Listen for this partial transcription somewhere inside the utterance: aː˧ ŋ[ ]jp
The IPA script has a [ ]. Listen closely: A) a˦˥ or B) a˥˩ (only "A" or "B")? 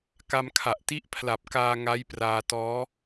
A